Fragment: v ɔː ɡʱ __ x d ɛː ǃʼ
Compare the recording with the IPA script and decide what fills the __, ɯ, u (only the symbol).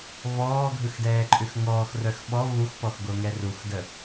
ɯ